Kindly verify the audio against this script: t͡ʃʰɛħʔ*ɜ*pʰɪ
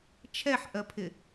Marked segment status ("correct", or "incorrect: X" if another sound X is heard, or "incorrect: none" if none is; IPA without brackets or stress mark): correct